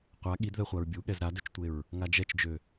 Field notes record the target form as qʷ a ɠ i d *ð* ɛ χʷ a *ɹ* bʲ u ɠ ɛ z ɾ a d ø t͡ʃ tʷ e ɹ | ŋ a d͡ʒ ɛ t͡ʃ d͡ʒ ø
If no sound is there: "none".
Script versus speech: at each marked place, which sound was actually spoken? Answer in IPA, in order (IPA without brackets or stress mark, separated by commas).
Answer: ð, ɹ